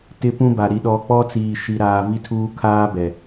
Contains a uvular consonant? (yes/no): no